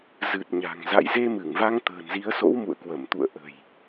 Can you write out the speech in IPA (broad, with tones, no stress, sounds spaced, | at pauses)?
z ɨ˨˩ t̚ ɲ a̤˨˩ ŋ z a̰˧˨ j z e˧ m ɨ˧˩ ŋ v a˧ ŋ t̪ ə̤ː˨˩ n z i˨˦ ə̯ s o̰˧˥ w m ṵ˧˨ ə̯ k w ə˧˩ m t̪ ṵ˧˨ ə̯ ʔ ə̤˨˩ j